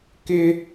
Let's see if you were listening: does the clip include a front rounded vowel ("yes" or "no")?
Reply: no